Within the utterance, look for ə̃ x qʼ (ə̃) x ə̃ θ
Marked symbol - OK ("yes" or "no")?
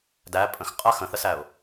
no